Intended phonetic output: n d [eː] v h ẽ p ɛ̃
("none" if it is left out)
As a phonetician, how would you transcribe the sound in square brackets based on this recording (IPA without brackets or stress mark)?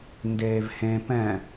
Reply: eː